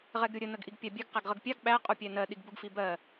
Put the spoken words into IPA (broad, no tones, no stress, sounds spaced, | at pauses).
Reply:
ʁ ɛ ɡ ɾʲ u ɾʲ ə n ə ɡ ʔ i ɡ pʲ ɑ bʲ ɛ ɡ q æ ɡ ʁ ə ɡ pʲ ɑ ɡ ɓ æ qʼ u pʲ æ n ɜ ɗ i ɡ b u ɡ f i b ɜ